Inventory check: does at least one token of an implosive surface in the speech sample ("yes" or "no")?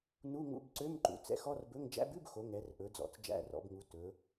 no